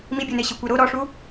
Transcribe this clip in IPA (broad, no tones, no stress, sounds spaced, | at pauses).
m i bʲ o n e ɕ i kʷ ɛ ɾ o ɾ ɔ ʂ u